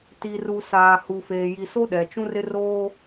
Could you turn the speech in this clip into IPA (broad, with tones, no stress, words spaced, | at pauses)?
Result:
ti˨ru˨ saː˨hu˨feː˨ ji˨so˦ɗɛ˨ t͡ʃũ˦rɪ˦ roː˦